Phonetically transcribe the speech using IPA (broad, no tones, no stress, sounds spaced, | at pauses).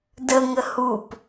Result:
d ə ŋ ə h u p